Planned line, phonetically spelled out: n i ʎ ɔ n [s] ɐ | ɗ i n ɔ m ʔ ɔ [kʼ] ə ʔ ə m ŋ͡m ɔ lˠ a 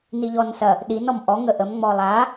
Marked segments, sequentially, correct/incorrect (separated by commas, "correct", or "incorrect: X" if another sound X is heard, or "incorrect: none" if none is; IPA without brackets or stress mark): correct, incorrect: ŋ